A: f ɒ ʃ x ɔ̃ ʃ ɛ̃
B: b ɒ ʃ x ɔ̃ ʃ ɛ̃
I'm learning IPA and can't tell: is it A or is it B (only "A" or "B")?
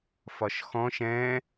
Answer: A